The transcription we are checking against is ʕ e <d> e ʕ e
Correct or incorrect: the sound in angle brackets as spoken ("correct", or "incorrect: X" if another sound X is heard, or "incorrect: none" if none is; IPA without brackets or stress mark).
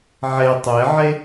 incorrect: tˤ